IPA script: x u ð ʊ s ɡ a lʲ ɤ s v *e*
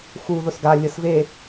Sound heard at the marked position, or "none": e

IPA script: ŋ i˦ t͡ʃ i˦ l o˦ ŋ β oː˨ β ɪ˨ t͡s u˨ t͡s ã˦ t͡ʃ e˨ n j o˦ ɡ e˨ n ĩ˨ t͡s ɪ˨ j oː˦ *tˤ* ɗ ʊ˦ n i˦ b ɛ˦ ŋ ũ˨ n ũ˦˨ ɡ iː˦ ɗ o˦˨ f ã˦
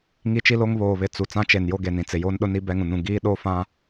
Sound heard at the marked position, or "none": n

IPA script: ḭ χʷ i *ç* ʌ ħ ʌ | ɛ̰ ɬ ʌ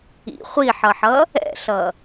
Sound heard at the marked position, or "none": ħ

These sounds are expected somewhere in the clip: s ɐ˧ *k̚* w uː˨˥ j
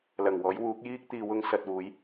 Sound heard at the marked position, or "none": t̚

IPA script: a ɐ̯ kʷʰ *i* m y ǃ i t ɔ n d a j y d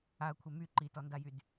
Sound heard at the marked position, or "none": e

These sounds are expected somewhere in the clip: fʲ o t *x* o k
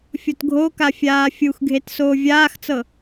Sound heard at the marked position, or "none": ɡʱ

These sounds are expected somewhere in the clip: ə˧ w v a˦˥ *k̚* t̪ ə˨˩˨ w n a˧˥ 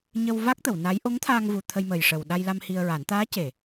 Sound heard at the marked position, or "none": k̚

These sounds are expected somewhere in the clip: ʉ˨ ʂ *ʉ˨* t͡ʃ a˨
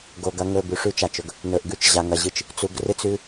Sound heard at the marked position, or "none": ʉ˦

